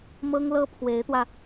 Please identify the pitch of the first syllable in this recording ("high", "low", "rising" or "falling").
high